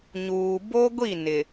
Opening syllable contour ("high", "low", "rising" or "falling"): low